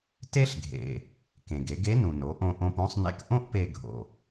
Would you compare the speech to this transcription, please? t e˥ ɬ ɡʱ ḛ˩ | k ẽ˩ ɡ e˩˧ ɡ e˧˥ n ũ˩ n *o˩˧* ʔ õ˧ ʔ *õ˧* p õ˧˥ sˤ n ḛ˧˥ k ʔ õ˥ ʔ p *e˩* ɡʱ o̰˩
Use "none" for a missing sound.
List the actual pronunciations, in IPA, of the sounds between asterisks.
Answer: o˩˧, õ˧, e˧

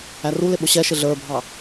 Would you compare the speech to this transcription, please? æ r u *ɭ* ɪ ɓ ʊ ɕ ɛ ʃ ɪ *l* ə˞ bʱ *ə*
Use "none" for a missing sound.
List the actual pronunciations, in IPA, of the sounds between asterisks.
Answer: l, ɮ, ɑ

